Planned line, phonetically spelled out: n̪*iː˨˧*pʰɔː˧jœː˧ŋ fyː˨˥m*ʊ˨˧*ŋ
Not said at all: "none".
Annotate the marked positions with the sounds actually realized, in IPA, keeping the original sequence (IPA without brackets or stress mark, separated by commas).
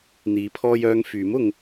iː˨˧, ʊ˨˧